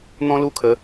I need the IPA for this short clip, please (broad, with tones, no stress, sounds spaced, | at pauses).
n̪ ɔ̃˦ l u˦ kʰ ə˨˦